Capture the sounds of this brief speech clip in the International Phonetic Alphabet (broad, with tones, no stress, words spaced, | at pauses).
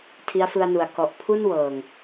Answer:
tʰi˦˥a̯fɯ˧a̯nu˩˦a̯ kɔ˨˩ʔ pʰu˥˩nwɤː˨˩ŋ